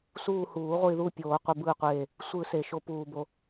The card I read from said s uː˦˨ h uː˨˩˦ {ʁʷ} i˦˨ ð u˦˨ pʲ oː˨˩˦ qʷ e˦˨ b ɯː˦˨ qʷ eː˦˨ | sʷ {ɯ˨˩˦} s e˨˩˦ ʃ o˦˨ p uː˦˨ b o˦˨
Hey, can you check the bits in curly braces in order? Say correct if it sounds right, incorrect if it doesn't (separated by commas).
correct, correct